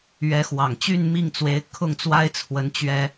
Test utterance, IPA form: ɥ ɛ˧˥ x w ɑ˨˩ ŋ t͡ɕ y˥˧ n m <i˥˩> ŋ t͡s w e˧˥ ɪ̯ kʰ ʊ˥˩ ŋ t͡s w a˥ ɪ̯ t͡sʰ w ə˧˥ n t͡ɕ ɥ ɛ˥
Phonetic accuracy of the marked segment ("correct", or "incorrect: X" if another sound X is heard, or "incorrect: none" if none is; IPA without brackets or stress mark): correct